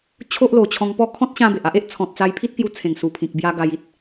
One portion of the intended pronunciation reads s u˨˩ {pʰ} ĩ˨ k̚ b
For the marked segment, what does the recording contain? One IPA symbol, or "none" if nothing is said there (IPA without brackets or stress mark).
pʰ